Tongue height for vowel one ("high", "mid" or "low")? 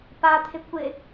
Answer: low